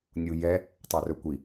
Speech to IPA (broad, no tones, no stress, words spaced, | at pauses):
nʲujɛ | tˤœrɵkʷi